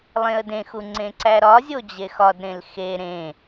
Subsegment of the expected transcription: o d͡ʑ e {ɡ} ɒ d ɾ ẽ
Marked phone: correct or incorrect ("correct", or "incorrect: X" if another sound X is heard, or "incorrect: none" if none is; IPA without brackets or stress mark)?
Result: incorrect: x